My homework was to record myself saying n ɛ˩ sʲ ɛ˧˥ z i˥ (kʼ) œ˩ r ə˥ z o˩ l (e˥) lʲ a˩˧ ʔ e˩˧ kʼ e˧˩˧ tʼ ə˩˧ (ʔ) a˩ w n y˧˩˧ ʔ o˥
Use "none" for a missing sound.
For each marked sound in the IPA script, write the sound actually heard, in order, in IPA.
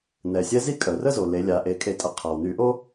kʼ, e˩˧, qʰ

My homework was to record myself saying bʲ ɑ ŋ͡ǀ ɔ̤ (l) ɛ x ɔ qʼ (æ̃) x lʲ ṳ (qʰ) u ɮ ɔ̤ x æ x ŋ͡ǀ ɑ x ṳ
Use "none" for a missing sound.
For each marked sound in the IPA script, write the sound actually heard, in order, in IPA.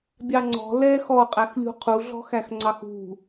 l, æ, qʰ

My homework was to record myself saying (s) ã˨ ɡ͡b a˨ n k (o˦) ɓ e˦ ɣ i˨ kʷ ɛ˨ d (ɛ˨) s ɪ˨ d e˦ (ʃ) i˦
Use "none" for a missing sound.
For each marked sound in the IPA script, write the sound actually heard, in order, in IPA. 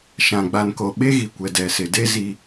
ʃ, o˨, ɛ˨, z

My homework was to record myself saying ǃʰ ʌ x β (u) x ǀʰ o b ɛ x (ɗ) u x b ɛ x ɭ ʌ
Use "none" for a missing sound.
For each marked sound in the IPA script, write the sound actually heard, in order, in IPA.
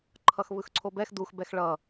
ɯ, d

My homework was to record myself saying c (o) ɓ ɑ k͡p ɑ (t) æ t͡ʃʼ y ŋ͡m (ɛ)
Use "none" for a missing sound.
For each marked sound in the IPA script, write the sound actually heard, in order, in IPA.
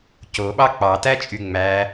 o, t, æ

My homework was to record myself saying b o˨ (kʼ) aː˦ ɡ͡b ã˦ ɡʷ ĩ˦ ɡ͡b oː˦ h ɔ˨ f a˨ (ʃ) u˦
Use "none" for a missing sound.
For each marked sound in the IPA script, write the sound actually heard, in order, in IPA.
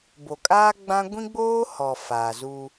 kʼ, z

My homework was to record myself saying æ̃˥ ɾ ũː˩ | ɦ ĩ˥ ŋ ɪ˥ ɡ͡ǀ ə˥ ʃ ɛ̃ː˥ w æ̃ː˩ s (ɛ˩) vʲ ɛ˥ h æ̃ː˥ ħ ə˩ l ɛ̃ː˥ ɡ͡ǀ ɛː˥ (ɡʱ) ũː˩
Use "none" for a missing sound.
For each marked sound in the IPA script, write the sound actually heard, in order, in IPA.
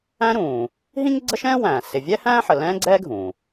ɪ˩, ɡʱ

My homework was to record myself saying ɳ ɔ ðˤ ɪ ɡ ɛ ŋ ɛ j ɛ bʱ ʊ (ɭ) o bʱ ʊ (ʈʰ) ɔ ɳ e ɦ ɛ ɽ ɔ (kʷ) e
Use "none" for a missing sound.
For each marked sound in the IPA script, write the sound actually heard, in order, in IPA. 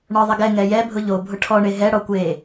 ʎ, ʈʰ, kʷ

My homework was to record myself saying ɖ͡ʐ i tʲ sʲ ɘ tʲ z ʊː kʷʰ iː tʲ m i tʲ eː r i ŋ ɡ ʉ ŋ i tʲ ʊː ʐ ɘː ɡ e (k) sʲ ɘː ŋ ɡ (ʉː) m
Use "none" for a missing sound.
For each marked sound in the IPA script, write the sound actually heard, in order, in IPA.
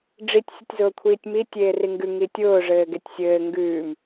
tʲ, ʉː

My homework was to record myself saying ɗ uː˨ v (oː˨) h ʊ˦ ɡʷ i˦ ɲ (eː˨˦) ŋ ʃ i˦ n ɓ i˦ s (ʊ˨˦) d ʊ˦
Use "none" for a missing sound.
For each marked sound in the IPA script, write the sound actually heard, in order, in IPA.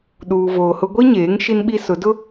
oː˨, eː˨˦, ʊ˨˦

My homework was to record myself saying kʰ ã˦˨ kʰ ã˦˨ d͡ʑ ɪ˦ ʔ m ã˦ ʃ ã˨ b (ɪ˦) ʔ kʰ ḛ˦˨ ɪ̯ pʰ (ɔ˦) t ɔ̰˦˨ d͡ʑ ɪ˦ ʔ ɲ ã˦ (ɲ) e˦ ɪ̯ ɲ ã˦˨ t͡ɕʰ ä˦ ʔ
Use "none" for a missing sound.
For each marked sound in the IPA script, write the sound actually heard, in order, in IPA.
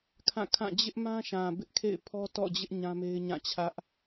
ɪ˦, ɔ˦, m

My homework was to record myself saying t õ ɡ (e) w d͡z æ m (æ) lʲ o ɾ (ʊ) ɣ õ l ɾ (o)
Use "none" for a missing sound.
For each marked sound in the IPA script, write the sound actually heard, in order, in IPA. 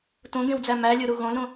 ẽ, æ, u, õ

